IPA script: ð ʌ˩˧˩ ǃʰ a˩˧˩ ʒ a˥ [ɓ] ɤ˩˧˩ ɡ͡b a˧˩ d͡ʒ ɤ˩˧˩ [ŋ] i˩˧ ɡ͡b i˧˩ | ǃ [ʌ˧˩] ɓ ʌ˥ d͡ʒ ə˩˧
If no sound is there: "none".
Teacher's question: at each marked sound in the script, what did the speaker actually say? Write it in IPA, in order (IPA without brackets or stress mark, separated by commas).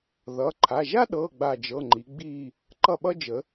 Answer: ɗ, ŋ͡ǃ, ʌ˥˩